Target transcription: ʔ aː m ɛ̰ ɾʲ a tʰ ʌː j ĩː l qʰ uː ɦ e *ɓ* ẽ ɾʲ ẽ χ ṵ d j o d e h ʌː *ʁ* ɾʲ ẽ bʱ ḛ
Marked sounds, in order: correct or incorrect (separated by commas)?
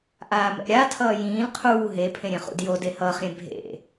incorrect, incorrect